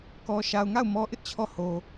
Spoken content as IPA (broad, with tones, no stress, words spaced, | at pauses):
kɔ˨ʃa˨ʊ̯ŋa˦˨ʊ̯ mɔ˦ʔɪ˦ʔt͡ɕʰɔ˦˨ ho˨